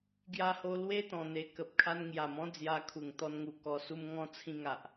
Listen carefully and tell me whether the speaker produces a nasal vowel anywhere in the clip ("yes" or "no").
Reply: yes